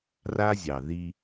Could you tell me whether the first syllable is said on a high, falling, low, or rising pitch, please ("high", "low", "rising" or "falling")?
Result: high